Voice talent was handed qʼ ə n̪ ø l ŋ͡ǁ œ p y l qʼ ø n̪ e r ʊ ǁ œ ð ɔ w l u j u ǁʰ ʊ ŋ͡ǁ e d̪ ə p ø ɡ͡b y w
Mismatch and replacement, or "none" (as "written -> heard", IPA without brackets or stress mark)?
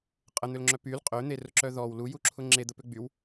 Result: none